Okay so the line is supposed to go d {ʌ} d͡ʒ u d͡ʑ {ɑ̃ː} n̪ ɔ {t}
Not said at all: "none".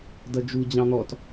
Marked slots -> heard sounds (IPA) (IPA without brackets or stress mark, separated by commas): ʌ, ɑ̃, t